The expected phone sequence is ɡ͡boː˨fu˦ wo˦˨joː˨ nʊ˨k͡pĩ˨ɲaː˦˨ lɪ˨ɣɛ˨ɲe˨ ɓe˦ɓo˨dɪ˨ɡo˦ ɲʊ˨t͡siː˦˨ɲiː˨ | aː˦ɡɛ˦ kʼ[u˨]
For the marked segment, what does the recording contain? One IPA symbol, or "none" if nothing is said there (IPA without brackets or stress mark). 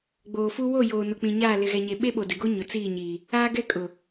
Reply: ʊ˨